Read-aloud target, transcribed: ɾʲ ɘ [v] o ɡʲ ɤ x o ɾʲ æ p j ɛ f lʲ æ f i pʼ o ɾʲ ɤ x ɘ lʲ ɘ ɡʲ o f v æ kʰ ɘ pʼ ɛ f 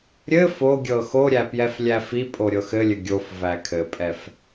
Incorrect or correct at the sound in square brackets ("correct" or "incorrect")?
incorrect